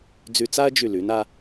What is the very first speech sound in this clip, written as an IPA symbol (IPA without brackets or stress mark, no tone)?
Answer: d͡z